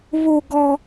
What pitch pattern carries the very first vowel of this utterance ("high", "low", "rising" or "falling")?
high